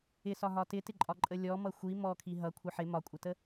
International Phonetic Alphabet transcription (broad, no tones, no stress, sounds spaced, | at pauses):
ɪ s ɒ ɦ ɒ t ɪ t ɪ ǃʼ ɒ ǃʼ ə lʲ ɔ m ʌ xʷ i m ɔ kʰ i ɦ ʌ kʷʰ ə ħ ɪ m ɒ kʷʼ ɪ t ə